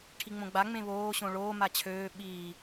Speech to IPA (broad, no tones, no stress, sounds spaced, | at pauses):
ʈʰ i ŋ͡m õ ɡ͡b a ŋ͡m ẽ β oː ɕ õ ɭ oː m a t͡ɕʰ øː ɓ iː